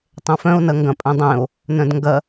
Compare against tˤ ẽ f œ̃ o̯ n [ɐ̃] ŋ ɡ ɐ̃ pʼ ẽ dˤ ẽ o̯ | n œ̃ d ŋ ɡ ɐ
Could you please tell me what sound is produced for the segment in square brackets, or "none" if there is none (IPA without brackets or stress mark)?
ɐ